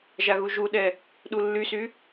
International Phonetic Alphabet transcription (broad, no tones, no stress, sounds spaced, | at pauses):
ʒ a ɣ u ʒ u ɗ ɛ | ɗ u lː y s y